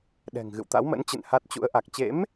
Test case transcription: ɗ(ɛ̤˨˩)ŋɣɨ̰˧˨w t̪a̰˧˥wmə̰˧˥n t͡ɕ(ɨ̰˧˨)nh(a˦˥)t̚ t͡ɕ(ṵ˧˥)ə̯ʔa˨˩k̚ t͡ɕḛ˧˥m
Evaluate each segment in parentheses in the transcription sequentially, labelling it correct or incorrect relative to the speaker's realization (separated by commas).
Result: correct, correct, correct, correct